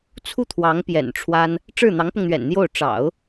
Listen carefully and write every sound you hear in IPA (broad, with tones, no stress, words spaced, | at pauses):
t͡sʰu˥˩t̪ʰwɑ˧˥ŋ pjɛ̰˨˩n ʈ͡ʂʰwa˥n | ʈ͡ʂɻ̩˥˩n̪ɑ˧˥ŋpʊ˧ŋn̪ɥɛ̰˨˩n n̪jo˥˩ʊ̯ ʈ͡ʂɑ̰˨˩˦ʊ̯